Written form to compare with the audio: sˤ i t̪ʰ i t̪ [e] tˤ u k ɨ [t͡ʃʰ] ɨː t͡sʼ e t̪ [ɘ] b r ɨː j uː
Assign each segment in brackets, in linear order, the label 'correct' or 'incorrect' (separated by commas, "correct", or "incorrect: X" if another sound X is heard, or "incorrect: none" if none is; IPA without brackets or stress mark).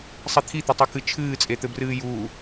incorrect: ɘ, correct, correct